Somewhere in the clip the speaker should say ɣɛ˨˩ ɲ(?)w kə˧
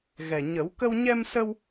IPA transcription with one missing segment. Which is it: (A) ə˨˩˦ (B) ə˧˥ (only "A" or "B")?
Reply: A